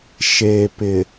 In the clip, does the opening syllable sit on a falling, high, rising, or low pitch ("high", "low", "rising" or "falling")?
low